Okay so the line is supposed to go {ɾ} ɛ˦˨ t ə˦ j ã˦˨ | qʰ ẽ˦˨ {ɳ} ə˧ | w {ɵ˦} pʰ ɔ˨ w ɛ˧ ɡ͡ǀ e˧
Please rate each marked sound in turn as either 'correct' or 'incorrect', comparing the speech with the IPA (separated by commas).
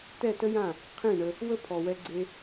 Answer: incorrect, correct, incorrect